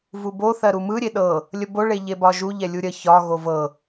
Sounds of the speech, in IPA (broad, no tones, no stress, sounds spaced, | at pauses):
v u b o θ ɜ ɾ u m ɯ ɾʲ e ɗ ɤ | lʲ ə b o ɭ e ʎ e b ɒ ʒ u ʎ ɛ lʲ u ɾʲ ə ç ɒ ɣ o v ɤ